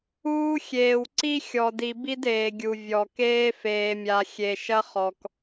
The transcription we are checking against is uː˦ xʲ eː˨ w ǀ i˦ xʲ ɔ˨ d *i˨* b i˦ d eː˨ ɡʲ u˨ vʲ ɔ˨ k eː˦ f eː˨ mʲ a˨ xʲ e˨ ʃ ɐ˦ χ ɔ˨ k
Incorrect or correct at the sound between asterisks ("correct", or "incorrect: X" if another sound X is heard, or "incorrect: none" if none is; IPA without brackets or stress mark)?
correct